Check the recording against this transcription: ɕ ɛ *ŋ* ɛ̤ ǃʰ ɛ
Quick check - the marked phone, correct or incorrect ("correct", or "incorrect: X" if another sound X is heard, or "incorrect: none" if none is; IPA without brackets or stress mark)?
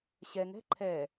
correct